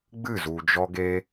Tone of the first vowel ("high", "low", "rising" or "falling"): falling